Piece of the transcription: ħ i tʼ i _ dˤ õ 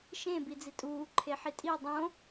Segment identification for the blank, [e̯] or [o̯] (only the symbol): o̯